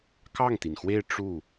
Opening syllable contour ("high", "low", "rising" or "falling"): falling